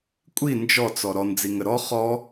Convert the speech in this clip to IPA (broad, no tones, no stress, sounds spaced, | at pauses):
kʷʼ i n d͡ʒ ɔ t͡s ɔ ɾ ɔ n d͡z i ŋ ə ɾ ɔ χ ɔ